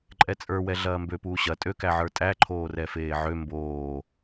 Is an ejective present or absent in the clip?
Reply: present